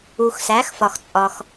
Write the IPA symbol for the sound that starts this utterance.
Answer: u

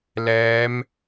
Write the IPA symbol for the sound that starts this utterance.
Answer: l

